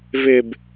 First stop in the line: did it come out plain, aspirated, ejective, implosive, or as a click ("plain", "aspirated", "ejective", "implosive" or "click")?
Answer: plain